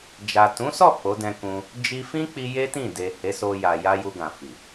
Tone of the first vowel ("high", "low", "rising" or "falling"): low